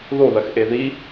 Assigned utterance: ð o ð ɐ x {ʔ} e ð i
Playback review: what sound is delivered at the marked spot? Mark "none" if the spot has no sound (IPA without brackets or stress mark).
ʔ